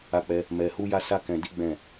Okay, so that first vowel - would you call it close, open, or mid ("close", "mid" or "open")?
open